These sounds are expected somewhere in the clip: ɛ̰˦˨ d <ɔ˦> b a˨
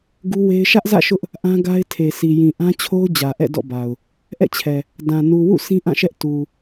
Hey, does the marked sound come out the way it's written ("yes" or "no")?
no